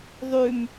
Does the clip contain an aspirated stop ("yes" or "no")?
no